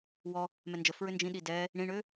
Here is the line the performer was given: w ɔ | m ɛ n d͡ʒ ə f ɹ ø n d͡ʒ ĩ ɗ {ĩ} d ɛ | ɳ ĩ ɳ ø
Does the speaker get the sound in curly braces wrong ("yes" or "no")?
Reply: yes